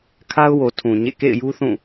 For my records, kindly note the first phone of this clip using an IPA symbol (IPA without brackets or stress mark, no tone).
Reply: kʰ